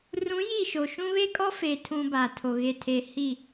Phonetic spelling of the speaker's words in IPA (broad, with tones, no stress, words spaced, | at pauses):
rũ˨˦ ji˦˨ʃo˨ʃũ˦ βe˦kʼɔ˦fe˨tʰũ˨ ba˨tʰo˨ ɣe˨tʰe˨ hi˦˨